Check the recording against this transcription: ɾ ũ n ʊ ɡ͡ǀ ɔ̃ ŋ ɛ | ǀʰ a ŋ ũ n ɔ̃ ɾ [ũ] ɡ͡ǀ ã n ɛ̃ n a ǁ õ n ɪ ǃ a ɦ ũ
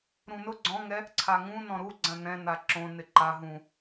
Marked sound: incorrect: u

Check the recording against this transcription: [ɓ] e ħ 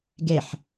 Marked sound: incorrect: ɡ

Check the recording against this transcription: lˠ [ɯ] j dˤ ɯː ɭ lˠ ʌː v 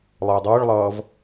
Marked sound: correct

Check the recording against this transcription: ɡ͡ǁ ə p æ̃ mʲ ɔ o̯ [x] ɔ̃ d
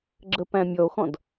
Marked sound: correct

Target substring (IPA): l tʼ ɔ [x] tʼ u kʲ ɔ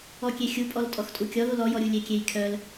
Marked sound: correct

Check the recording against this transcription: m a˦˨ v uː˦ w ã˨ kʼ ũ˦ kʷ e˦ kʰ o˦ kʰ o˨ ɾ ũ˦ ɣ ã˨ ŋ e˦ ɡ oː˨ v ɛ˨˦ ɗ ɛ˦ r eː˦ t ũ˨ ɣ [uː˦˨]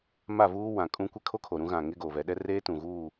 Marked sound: correct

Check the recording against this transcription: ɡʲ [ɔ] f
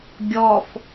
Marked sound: correct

